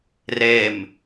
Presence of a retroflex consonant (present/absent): absent